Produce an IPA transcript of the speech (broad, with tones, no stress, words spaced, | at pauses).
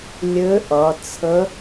lʲɘ˧˥ ʔʌ˩˧t͡sʰə˧˥